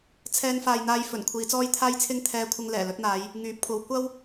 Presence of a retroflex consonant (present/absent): absent